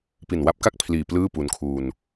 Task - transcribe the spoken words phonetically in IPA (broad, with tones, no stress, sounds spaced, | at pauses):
p i˨˩ n w a˦˥ p̚ k a˥˩ k̚ pʰ l iː˨˩ p l ɯː˥˩ p u˧ n kʰ uː˧ n